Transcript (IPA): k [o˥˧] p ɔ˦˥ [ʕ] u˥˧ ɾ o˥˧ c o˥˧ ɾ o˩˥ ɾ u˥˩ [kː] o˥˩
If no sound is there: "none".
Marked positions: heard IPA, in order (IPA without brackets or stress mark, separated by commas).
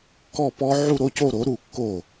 ɔ˥˧, ʕ, kː